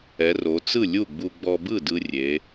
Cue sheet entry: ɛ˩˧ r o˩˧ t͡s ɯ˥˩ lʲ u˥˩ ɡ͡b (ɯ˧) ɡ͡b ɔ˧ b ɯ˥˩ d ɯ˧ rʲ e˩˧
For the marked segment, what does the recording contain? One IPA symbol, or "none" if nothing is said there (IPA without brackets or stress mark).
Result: u˧